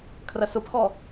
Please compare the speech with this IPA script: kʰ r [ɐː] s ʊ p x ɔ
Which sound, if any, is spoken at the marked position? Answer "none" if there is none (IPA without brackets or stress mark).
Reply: ɐ